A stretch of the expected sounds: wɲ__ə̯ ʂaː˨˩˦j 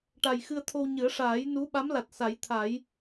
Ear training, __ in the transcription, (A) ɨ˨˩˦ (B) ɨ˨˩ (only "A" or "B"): A